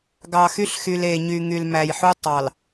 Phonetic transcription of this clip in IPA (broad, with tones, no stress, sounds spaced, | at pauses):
ɡ ɑ˨ x y˦ ɬ x y˨ l e˨ ɲ y˨ ŋ y˨ l m æ˨ j ħ u˦ tˤ ɑ˨ l